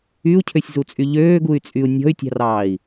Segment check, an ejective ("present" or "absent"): present